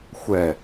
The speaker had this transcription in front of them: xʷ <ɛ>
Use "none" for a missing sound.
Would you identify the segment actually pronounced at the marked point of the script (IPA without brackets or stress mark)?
ɛ